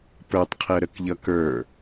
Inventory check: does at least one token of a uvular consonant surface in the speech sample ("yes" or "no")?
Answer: yes